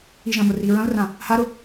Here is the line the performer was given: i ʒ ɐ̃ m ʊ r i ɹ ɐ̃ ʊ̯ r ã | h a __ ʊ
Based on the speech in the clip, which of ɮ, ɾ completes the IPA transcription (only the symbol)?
ɾ